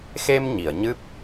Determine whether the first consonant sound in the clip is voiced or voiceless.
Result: voiceless